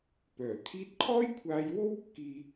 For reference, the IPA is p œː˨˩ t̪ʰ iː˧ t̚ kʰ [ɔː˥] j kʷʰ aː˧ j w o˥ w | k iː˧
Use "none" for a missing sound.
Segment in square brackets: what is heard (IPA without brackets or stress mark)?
ɔː˥